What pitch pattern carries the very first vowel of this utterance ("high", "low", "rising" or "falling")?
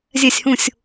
falling